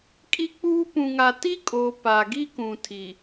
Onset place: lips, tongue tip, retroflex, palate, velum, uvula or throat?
velum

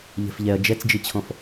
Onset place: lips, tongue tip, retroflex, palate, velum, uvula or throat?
palate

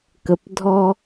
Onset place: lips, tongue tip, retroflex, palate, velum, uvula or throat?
velum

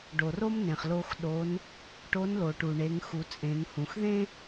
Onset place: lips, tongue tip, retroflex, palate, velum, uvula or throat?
retroflex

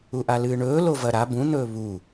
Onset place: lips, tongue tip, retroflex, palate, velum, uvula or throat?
throat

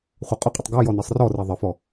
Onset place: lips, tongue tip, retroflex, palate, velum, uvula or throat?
uvula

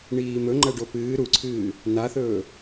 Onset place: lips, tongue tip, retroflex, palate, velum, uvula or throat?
retroflex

